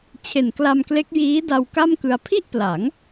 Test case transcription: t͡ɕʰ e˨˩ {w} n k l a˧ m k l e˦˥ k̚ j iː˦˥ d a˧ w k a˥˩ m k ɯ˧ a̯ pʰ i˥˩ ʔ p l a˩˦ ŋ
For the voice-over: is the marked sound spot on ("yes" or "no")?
no